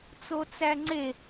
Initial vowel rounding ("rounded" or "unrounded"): rounded